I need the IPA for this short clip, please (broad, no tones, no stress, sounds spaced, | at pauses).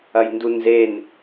ɐ j n d u n z e n